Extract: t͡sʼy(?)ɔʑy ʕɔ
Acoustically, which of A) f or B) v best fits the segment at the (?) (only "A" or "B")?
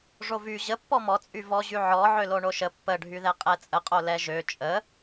B